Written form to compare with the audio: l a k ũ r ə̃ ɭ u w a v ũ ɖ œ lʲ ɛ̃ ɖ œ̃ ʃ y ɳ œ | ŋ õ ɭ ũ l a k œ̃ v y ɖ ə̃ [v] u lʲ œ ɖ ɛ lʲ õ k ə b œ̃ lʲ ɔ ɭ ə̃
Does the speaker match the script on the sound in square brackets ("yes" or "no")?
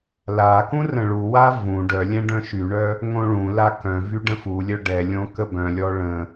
no